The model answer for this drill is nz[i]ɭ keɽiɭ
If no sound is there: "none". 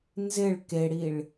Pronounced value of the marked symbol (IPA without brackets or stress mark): ɪ